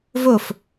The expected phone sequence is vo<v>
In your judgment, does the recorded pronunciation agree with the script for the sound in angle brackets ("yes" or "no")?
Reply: no